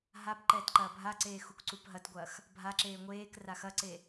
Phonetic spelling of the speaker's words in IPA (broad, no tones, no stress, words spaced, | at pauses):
ɦapǃɛːt ǃɐːbʱaǀeː xukǀupɦɐtɡʷɐːx | bʱaǁeː ŋʷeːk raxɐǀe